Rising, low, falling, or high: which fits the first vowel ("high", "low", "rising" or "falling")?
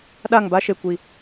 falling